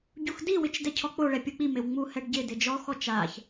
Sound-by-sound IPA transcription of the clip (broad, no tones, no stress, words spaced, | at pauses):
ɟuxdiwɪt͡ʃ dɛcʰɔk͡poɭɛ pʲuk͡pimew ŋ͡muhɛɖ ɟɪ dɪd͡ʒɔxɔ t͡ʃaç